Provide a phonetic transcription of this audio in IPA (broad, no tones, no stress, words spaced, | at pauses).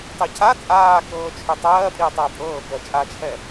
tˤicʰa t͡sʼaːkɤːt͡ʃʰø tˤɜːpʼiʊ̯ tˤaʊ̯pʼɤː kɜt͡ʃʼat͡ʃʰɛ